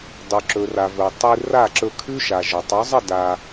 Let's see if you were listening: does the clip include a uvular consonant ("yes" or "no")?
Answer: no